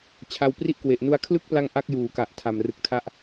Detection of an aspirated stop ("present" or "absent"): present